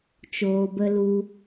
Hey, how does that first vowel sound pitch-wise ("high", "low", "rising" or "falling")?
low